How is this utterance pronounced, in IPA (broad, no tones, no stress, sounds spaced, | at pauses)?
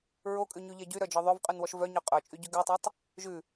ɹ o kʼ ʉ ɲ ʉ ʎ ɛ ɟ y ɾ œ d͡ʒ ɔ ðˤ œ v qʼ ʉ n w ɔ ʃ v œ ɲ œ qʼ œ t͡ʃʼ y ɟ ʉ ɡ ʉ tˤ ɛ tˤ | ʒ ʉ